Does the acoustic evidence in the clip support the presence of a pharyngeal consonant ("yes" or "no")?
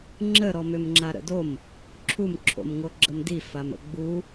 no